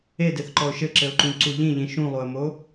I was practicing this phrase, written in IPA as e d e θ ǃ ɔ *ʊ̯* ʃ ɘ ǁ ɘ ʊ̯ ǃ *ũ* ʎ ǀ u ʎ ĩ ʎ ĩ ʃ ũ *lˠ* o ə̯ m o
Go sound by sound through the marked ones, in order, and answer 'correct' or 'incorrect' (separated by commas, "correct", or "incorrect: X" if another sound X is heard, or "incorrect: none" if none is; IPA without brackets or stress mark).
correct, correct, correct